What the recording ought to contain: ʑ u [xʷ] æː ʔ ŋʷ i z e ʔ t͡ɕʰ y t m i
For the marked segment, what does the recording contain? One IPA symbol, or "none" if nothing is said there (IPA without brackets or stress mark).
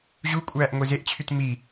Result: kʷʼ